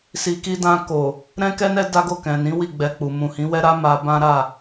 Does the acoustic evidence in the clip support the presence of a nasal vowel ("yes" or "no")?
yes